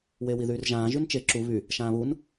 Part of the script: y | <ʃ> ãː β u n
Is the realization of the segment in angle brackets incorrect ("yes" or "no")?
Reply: no